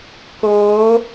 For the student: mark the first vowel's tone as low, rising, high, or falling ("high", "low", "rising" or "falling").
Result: rising